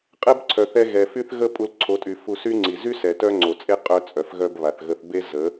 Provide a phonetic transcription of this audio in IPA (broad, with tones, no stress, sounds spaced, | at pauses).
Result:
qʼ ɛ˦ b ǀʰ œ˨ θ ɛ˧ ɣ ɛ˨ f y˦ θ ɣ ə˦ pʼ u˧ l ǀʰ o˨˦ tʼ y˨ f u˧ s y˦ ŋ͡ǀ i˨ z y˦ s ɛ˨ t œ˦ ŋ͡ǀ o˨ t͡sʼ e˦ qʼ œ˧ t͡sʼ œ˨ f ɣ œ˧ b β a˨ θ ɣ ə˧ θ b e˦ z ə˨˦